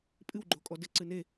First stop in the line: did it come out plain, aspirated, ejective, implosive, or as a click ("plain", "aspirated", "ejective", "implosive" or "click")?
ejective